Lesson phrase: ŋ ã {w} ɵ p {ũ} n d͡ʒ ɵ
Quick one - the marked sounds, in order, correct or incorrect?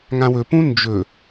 correct, correct

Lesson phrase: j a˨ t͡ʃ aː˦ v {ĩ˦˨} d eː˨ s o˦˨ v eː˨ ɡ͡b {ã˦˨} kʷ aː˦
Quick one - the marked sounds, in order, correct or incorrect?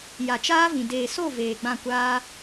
incorrect, correct

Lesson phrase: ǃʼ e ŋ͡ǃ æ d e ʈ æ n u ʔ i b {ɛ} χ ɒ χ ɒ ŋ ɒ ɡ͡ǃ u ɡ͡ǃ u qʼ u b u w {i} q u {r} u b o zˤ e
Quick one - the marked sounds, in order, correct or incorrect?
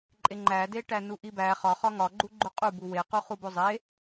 incorrect, incorrect, incorrect

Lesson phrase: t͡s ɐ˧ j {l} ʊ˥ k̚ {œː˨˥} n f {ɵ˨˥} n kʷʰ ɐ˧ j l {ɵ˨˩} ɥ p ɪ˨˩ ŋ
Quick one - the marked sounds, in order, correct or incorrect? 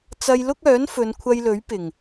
correct, correct, incorrect, incorrect

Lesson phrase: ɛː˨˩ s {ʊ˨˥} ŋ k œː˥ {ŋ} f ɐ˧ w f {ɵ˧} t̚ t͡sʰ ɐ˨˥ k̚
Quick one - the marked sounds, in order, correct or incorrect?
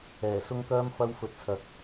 incorrect, incorrect, incorrect

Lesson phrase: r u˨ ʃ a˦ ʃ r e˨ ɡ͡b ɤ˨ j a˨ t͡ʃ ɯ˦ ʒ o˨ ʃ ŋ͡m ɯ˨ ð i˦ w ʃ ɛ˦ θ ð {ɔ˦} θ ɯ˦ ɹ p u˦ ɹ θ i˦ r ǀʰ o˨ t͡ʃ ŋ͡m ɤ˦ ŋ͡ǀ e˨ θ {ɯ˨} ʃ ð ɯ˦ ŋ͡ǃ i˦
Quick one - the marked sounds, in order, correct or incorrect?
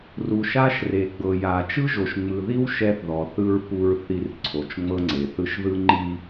incorrect, incorrect

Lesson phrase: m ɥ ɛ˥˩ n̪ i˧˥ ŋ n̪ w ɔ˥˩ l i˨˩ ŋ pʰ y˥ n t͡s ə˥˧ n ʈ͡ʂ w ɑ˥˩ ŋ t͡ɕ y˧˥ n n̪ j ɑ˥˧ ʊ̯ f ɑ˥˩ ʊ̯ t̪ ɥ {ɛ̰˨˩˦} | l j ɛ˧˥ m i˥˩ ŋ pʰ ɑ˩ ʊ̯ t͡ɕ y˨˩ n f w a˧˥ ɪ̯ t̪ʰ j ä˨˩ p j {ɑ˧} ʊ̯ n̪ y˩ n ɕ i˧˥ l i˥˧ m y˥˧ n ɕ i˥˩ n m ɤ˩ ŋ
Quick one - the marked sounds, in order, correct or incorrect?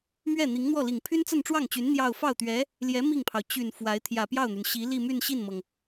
incorrect, incorrect

